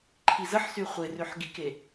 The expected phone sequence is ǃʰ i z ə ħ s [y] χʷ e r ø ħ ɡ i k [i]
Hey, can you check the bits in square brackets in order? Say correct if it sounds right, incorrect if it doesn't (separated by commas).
correct, incorrect